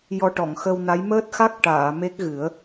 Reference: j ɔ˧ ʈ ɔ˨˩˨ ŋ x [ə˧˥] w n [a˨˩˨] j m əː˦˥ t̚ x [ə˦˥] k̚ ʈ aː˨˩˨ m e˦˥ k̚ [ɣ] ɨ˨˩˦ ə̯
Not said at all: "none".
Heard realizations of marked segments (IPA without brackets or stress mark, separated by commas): ə˧, a˧˥, a˦˥, ɣ